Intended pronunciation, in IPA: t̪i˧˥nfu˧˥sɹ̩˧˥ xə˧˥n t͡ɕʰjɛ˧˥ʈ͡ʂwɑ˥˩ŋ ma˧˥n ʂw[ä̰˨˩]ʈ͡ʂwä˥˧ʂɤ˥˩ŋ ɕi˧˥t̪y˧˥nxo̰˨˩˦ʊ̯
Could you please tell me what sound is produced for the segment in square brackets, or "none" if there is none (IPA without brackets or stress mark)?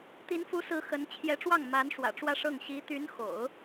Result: ä̰˨˩